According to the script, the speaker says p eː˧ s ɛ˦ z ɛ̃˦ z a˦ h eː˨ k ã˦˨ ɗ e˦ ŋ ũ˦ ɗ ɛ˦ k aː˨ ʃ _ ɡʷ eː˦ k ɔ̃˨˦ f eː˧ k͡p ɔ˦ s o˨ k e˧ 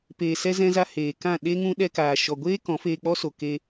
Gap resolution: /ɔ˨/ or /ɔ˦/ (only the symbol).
ɔ˨